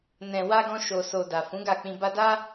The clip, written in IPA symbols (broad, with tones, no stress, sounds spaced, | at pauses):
n ɛ̃˨ w a˧ ɡ ɔ̃˧ ʃ o˨ s o˨ d a˨ f ũ˨˦ ɡ a˦˨ k͡p ĩ˧ b a˧ d a˦